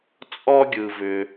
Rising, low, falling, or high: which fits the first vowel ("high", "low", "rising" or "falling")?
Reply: high